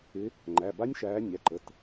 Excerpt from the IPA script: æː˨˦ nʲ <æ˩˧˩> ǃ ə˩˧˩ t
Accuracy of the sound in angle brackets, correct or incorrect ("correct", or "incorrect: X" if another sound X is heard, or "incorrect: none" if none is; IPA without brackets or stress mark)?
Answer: correct